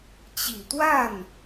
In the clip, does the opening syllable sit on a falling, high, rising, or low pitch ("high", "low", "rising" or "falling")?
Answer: low